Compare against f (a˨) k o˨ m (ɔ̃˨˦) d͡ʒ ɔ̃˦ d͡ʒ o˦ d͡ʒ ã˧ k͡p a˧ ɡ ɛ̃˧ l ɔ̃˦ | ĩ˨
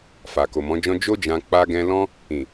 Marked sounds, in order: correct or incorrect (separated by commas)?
correct, correct